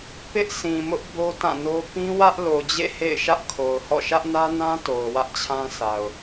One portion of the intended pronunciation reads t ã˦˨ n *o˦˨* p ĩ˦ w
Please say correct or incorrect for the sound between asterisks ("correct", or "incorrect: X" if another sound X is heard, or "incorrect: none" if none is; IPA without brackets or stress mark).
incorrect: o˦